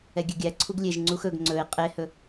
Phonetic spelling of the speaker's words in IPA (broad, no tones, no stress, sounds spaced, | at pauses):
ɛ ɡʲ ɛ ɡʲ æ ǀʰ u ɡ lʲ e ʒ ŋ͡ǀ u x ɵ ɡ ŋ͡ǀ ɵ e̯ qʼ e h ɵ